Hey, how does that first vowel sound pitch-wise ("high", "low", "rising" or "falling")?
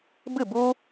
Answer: falling